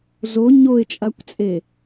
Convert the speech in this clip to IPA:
z o ɲ o ɪ̯ t͡ʃʼ a kʷ t͡sʼ e

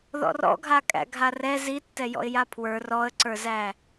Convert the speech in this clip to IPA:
ð ɔ̰ r ɔ̰ ɡʱ a kʼ æ̰ ɡʱ a r ɛ z i tː ɛ j ɔ̰ ɪ̯ j a pʰ w ə˞ r ɔ ə̯ ǀ ə˞ z æ

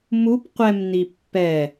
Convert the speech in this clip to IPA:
m u p qʷ ɛ m n i pː ɛ

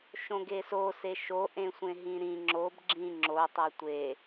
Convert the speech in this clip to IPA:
ʃ õ ɡ e s o s e ʃ o ʔ ẽ sʷ ẽ ɦ ĩ ɾ ĩ ŋ͡ǁ o b ɡ͡ǁ ĩ ŋ͡ǁ o tˤ ɜ tʷ e

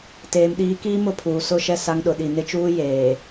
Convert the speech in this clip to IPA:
t eː˨ m ɗ iː˨˦ k iː˦ m ʊ˦˨ pʰ uː˨ s ʊ˦˨ ʃ ɛ˦˨ s a˦ ŋ ɗ ʊ˨ ɗ i˨ n ɪ˦ t͡ʃ uː˦ j eː˨

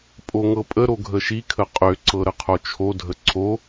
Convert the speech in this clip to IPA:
pʼ o ŋ ɤ pʼ ə ɾ o ɡʱ ə ʃ i kʰ ə qʼ ø ǀ ɤ ɾ ə qʰ o t͡ʃʰ o dʱ ə ǀʰ o

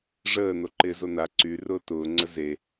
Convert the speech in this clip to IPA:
ʐ əː n o ǃ ɪː z o n a ǀ y r ʊː t ʊː ŋ͡ǀ ə z e

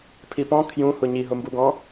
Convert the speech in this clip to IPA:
pʰ i p ɔ̃ kʰ j ũ h ʊ ɲ i ɦ ʊ m b u ɡ ɔ̃

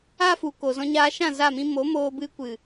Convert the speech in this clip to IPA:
a˦ f u˨ k o˨ z ɔ̃˧ ɲ aː˧ ʃ ã˦˨ z a˦˨ m ĩ˦ m o˨˦ m oː˧ b ɨ˧ kʷ ɨ˨

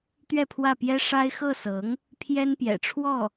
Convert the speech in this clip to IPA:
t̪ ɥ ɛ˥˧ pʰ w ä˥˩ p j ɛ˥ ʂ a˥ ɪ̯ x ɤ˥˩ s ɤ˧˥ ŋ | pʰ j ɛ˥ n p j ɛ̰˨˩ ʈ͡ʂʰ w ɔ˥˩

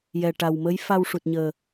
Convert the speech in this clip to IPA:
j ɛ˨˩ ʈ a˨˩ w m ə˧˥ j f a˧ w ʂ u˨˩ t̚ ɲ əː˨˩

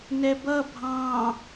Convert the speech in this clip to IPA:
n ɛ b ʌ bʱ ɑ̃

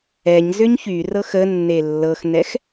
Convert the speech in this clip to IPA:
ɛ ɲ z ʏ ɲ ç y r ɤ x ə nː e lː ɤ x n ɛ x

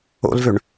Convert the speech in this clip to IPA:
o̰ l v ø ɳ

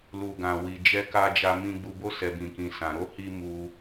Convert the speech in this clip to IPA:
l u˨ ɡ ã˨ w i˨ d͡ʒ ɛ˧ k a˧ d͡ʒ a˧ m ĩ˧ ɡ͡b u˧ b o˦ s ɛ˧ b ĩ˧ k ĩ˧ s ã˧ ɾ o˦ h i˧ m u˧

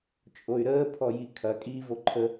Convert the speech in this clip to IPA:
t͡ʃʼ o y̯ ɾ əː pʰ ɔ j i kʰ ɐ kʼ iː v o ǃʰ ə

